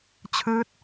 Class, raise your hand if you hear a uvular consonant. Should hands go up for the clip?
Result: no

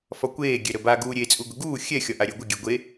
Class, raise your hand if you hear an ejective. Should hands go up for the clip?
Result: yes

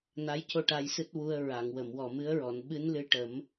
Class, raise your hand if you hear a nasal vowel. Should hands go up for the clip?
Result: no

